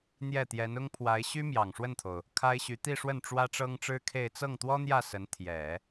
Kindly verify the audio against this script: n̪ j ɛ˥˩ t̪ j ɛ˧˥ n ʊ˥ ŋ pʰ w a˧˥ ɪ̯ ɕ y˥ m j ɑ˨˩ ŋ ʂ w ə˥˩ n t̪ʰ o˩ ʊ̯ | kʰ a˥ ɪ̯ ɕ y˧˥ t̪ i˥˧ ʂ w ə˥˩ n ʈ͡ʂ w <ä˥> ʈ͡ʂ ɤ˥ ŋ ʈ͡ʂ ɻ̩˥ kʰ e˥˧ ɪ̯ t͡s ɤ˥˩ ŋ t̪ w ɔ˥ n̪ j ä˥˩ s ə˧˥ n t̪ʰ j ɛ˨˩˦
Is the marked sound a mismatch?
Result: no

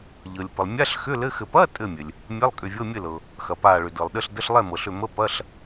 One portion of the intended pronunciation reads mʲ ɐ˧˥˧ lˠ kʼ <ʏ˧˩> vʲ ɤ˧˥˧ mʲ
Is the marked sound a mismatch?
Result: no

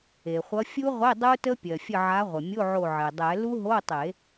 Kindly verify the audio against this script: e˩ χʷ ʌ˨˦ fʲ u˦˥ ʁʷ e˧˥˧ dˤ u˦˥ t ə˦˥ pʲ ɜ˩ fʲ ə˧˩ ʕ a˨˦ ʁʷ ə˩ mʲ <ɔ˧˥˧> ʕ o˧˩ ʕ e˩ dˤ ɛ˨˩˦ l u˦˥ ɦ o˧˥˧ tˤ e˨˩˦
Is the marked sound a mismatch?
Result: yes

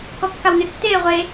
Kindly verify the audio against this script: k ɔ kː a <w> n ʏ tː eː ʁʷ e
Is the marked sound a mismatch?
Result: no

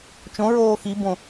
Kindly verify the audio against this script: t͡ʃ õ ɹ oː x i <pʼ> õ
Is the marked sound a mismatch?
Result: yes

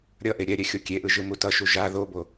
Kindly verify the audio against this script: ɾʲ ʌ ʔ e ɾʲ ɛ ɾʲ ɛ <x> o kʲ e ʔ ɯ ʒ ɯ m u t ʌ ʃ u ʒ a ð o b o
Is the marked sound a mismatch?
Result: yes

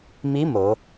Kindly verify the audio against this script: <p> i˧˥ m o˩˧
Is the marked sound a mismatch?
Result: yes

